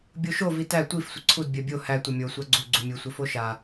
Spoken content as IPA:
bʲ o ʃ o v i t æ tʷ i f sʷ ə ǀʰ u d bʲ ɜ bʲ o h æ tʷ ʌ mʲ o sʷ a ɡ͡ǀ u ɡ͡ǀ u mʲ u sʷ ʌ f o ʃ a

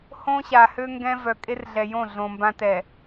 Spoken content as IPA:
h õ˦ ɕ a˨ h ø˦ ŋ ɡ ɛ̃˦ v œ˨ kʼ e˦ r ɮ ɛ˨ j õ˦˨ ɮ õ˨ m b ã˦ t ɛ˨

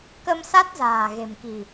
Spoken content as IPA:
k ə˧ m s a˦˥ t̚ z a̤ː˨˩ ɣ e̤˨˩ m k i̤˨˩

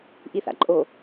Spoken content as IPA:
ʔ i θ a̰ ǃʼ o

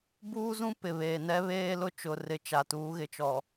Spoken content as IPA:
b uː˦ z ũ˦ p ɪ˨ β eː˨ n ɛ˦ β eː˦ l ʊ˦ t͡ʃ ʊ˨ r ɪ˨˦ t͡ʃ a˨ t uː˨˦ ɣ ɪ˨ t͡ʃ ɔ˨

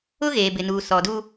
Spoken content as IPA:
ʊ˦ ɣ eː˨ b ɪ˨ n uː˨ s ɔ˨ d u˦

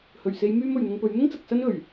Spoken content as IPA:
h ɵ˨˩ ɥ s e˨˧ j m yː˧ m ɵ˨˩ ɥ n̪ ʊ˧ ŋ p ɵ˨˥ ɥ n̪ ʊ˥ ŋ t͡s ɐ˨ k̚ s ɐ˥ n ɵ˨˩ ɥ

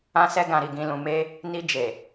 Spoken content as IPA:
ã˧ s ɛ˧ ɡ ã˨ ɾ i˨ ɡ ĩ˨ l ũ˨ m e˧ | n i˧ d͡ʒ e˨

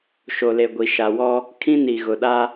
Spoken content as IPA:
ʃ o˨ l e˨ ɡʷ i˨ ʃ a˨ w ɔ˦ | kʰ ĩ˦ n i˨ ɣ ʊ˨ ɗ a˦

